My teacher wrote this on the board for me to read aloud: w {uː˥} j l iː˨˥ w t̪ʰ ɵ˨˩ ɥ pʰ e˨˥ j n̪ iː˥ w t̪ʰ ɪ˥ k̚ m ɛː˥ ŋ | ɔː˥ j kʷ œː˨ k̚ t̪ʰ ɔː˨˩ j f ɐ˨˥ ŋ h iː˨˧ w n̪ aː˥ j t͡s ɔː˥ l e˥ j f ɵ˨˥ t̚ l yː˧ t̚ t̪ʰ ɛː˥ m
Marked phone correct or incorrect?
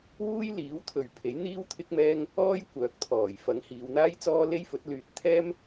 correct